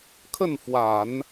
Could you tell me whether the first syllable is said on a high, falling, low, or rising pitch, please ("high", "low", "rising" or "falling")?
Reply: falling